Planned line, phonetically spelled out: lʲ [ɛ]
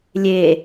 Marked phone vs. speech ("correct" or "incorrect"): incorrect